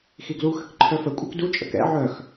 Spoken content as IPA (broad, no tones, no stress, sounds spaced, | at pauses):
x i ɡ l u x ə k ǃʰ œ f ə kʷʼ œ k d u t͡ʃʼ ə̰ k ɛ̰ ʕ œ x